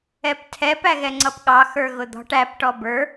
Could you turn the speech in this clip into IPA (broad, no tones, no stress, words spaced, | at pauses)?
ɛptʰɛp æɣɛŋ͡ǀʌpɠɑ xə˞ɣʊd̪ɔ̤ʈ æp ʈɔbə˞